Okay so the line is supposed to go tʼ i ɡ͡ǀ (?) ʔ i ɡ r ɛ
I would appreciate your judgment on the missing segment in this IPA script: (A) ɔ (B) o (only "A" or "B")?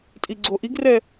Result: B